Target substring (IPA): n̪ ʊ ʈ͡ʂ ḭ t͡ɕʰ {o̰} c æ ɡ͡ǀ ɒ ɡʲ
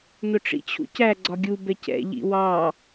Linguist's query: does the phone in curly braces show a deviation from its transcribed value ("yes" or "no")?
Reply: yes